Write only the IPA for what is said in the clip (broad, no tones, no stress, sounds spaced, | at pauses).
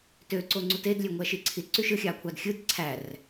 t ø ǀ o ŋ͡ǀ u t e d lʲ ø ŋʷ æ ʃ i ǀʰ i t ǀ y ʃ ɯ xʲ ɑ kʷʰ ɑ d xʲ ɯ d ǀʰ æ r